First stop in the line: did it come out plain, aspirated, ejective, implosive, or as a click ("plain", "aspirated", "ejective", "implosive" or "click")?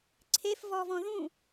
click